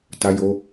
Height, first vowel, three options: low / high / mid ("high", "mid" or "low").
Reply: low